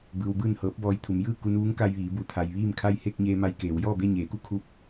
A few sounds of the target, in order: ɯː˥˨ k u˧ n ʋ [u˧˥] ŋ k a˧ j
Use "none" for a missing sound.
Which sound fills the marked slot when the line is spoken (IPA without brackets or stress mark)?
u˧˥